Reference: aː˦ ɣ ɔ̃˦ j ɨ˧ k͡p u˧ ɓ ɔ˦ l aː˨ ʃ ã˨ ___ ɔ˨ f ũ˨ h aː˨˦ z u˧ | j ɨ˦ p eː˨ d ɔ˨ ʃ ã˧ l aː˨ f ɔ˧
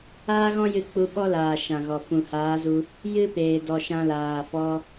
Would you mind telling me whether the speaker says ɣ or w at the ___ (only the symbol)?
ɣ